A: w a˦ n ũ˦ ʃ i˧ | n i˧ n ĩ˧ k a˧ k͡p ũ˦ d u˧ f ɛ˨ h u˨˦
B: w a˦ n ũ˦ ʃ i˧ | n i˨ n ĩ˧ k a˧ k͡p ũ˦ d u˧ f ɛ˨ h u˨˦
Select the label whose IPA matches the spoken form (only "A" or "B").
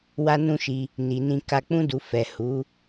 B